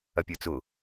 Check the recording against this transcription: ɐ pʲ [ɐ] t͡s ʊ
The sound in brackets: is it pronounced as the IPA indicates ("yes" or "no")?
no